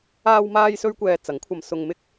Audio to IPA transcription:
aː˥ w m aː˥ j s ɵ˥ ɥ kʷ ɛː˧ t͡s ɐ˨˥ ŋ kʷʰ ɐ˧ m s ʊ˧ ŋ m ɪ˥ k̚

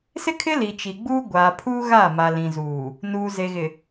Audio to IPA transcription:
s ɪ˦ kʰ ɪ˦ l i˨ t͡ʃ i˨ ɡ͡b uː˦ ɡʷ aː˨ pʰ uː˦ ɣ aː˦˨ m a˨ l ĩ˨ z uː˨ | n uː˨ z e˨ ɣ ɪ˨

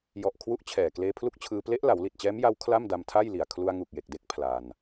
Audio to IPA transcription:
j ɔ˨˩ ʔ kʰ w u˥˩ ʔ t͡ɕʰ ɛː˨˩ k l eː˧ pʰ l u˦˥ k̚ t͡ɕʰ ɯː˧ p l e˦˥ ʔ l a˩˦ w l i˨˩ t̚ t͡ɕ ɛː˦˥ m j a˦˥ w kʰ l a˥˩ m d a˧ m tʰ a˥˩ j l i˨˩ a̯ kʰ l u˧ a̯ ŋ u˨˩ k̚ j e˨˩ k̚ d e˦˥ k̚ pʰ l a˧ n

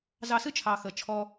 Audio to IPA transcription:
z ɑ˧ s ɨ˥ t͡ʃʰ ɑ˩ x ə˩ t͡ʃʰ ɔ˧

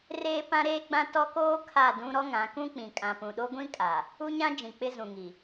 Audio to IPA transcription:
r eː˦ p ã˦ ɾ eː˦ ɡ͡b ã˦ t ɔ˦ k oː˦ kʰ a˦˨ d ũ˦ ɾ ɔ˦ ŋ ã˨˦ k ũ˦ k͡p ĩ˨ kʼ ã˨ p ũ˨ ɗ o˦ ɡʷ ĩ˦ kʼ a˨ | u˦ ɲ ã˦ d͡ʒ ĩ˨ k͡p ɪ˦ z ũ˨ ŋ i˨

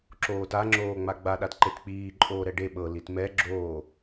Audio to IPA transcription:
ǁ oː t a ŋ͡ǁ oː ŋ͡m a ɡ͡b a ɗ a t ǃ e t k͡p iː ǃʼ oː ɾ ɛ ɖ e ɓ ɤ l i t m ɛ ɡ͡ǁ oː

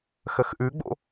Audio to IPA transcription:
x ə x ʔ ʉ ɡ͡b o̰

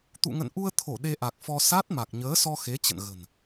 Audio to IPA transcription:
t̪ ṵ˧˨ ŋ ə̰˧˨ n ʔ u˧ ə̯ t̪ʰ o˧˩ ɗ e˧ ʔ a˨˩ k̚ f ɔ˧ s a˦˥ t̚ m a˨˩ k̚ ɲ əː˨˦ s ɔ˧ x e˨˦ t͡ɕ ə̰˧˨ n ɣ ə̤˨˩ n

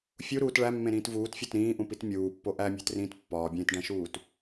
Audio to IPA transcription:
fʲ u ɾ uː t ɭ æ mː ẽ ɾ ĩː t v uː t fʲ ɒ t ɾ ĩː ʔ ũ p i t mʲ uː pː o ʔ æ mʲ æ̤ t r ĩː t pː ɒː bʲ ẽː t ɖ æ̃ ʃ uː t

